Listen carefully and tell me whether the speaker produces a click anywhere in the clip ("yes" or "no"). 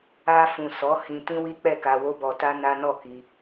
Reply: no